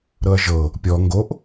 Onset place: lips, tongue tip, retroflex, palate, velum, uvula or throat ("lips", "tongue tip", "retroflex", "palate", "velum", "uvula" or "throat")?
tongue tip